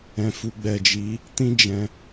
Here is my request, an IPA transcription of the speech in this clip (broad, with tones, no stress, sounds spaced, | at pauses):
ɛ̃˨ f u˨ ɡ͡b ɛ˨ d͡ʒ i˨˦ | t ĩ˦ d͡ʒ ɛ̃˧